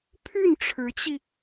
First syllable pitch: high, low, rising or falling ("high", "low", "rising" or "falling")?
falling